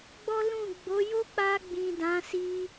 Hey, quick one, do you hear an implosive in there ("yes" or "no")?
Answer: no